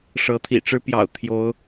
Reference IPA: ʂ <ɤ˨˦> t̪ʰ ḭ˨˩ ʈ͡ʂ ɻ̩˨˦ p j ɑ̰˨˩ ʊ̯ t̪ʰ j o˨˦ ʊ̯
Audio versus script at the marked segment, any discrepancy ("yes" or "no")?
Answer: no